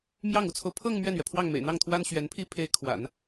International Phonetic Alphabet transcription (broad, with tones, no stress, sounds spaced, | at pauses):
m j ɑ˥˩ ŋ u˧˥ t͡sʰ o˧ ʊ̯ pʰ ɤ˥˧ ŋ m ɥ ɛ˥˩ n ɥ ɛ˩ pʰ w ɑ˥˩ ŋ m ḛ˨˩ ɪ̯ n̪ ɑ˥˩ ŋ t̪ʰ w a˥ n ɕ ɥ ɛ˧˥ n pʰ i˥ pʰ e˧˥ ɪ̯ kʰ w a̰˨˩˦ n